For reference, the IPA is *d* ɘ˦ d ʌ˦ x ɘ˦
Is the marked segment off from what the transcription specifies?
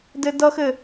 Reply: no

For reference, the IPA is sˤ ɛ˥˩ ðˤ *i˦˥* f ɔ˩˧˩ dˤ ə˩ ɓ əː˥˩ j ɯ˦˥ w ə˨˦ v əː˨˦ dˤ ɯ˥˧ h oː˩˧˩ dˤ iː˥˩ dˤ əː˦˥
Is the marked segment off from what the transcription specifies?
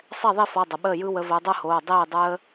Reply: yes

